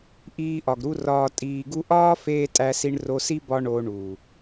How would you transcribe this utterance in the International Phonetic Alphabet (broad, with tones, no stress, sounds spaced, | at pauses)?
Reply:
ʔ iː˧ ʔ ɒ˨ ɡ ɾ u˧ r ɒː˨ tʼ iː˨ ɡ u˧ ʔ ɒː˦ f eː˦ tʼ æ˧ s i˧ ɳ r o˧ s i˦ b ɒ˧ ɳ o˧ ɳ u˨